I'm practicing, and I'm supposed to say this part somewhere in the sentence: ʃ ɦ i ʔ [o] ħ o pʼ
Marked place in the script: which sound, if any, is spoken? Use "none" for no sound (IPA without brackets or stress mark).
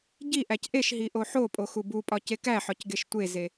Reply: o